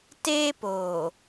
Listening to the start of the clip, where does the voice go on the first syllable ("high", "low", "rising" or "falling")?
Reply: high